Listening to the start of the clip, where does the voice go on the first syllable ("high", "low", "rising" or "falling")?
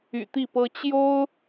low